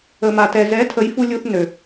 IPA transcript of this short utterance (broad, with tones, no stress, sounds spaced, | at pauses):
ə˨ m a˨ t ɛ˨ z ɛ˨˦ tʰ ə˨˦ j f u˧ lʲ u˧ θ n ø˨